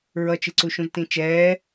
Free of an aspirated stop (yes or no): yes